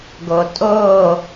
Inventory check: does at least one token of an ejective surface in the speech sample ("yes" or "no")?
yes